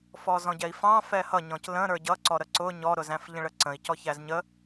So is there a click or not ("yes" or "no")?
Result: yes